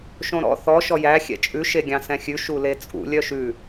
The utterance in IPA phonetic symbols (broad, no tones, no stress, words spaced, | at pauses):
ʃõɾɔ̰ θɔ ʃɔjæ xʲɛ̰t͡ʃʼʉ ʃeɡʲɑ̃sɛ̃xʲʉ ʃulet͡sʼṵ lʲœʃʉ